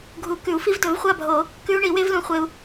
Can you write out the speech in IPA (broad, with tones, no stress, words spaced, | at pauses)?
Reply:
ɡʱu˨˩˦kʉ˨˩˦u̯fi˦˥v dɵ˨˩˦vχʷa˥˨bʱo˨˩˦ | kʉ˦˥u̯ɳi˨˩˦ we˦˥vlũ˨˩˦χʷe˨u̯